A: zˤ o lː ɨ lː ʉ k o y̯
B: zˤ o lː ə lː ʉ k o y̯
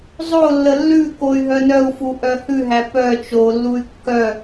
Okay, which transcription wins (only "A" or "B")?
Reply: B